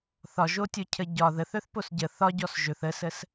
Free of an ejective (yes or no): yes